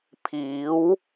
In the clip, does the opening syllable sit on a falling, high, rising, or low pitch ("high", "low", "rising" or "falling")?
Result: rising